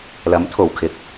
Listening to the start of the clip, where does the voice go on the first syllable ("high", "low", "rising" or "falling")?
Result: rising